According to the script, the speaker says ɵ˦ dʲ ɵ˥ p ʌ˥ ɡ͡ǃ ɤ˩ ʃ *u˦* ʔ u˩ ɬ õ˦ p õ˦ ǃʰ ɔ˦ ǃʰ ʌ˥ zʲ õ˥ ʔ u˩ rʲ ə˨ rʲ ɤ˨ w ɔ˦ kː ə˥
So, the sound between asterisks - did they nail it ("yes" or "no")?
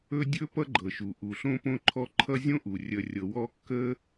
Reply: no